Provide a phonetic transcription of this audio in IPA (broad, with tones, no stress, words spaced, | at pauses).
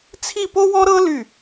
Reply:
t͡sʰi˥˧po˥wɔ˥ɾɤ˥ ly˥˩